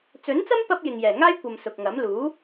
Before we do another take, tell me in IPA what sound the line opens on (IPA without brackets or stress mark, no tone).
t͡s